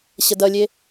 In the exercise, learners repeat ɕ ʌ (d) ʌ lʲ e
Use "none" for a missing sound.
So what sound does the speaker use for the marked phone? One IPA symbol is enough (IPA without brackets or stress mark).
d